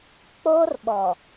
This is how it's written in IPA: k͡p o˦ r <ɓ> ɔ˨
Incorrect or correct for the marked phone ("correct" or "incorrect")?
correct